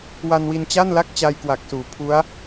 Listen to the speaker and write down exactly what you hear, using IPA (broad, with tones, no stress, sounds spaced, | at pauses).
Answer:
w a˧ n w i˧ n t͡ɕ a˥˩ n l a˥˩ k̚ t͡ɕ a˧ j k w a˨˩ k̚ s uː˩˦ pʰ u˦˥ a̯